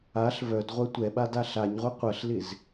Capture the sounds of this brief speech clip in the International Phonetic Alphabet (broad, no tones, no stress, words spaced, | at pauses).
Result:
aɬ vœdʁʷɜ tʷɛɓad aɬaɲʁʷɛ qʷɜɬlɪz